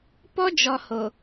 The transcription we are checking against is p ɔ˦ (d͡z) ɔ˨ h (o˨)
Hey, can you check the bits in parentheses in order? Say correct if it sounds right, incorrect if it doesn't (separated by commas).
incorrect, correct